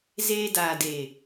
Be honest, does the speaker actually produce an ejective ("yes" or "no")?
no